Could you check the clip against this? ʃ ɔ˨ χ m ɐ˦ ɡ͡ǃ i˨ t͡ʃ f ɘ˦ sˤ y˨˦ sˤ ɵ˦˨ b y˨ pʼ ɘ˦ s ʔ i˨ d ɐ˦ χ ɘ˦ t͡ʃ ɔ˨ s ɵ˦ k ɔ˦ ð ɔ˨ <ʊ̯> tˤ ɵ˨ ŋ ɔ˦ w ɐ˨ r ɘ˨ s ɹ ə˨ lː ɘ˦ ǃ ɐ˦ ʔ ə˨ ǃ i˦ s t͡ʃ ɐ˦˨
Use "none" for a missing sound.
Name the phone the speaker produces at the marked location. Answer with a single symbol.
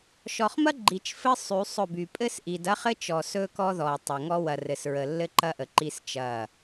ʊ̯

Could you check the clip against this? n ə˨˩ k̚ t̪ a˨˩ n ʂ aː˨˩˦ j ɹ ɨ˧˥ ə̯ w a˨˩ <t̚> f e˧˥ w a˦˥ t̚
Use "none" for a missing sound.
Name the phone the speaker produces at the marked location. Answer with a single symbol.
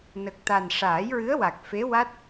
k̚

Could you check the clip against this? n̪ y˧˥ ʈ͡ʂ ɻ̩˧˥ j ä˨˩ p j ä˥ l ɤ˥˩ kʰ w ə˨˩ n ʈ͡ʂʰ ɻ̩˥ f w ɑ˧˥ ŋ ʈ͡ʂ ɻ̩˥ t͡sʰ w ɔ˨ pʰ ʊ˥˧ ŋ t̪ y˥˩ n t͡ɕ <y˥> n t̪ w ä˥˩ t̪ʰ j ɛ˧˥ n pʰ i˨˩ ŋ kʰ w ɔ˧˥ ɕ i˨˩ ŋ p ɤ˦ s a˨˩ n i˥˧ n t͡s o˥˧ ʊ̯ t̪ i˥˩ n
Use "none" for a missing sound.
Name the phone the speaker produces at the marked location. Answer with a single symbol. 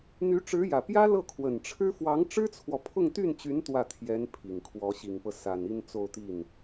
y˧˥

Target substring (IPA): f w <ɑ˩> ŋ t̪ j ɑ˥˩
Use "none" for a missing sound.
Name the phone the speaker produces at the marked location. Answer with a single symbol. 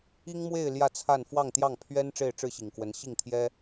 ɑ˥˧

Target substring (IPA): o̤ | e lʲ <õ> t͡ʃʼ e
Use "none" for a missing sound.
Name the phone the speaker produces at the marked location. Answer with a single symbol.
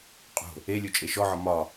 o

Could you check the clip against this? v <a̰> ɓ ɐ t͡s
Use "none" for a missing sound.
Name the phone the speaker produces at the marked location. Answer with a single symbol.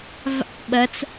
a̰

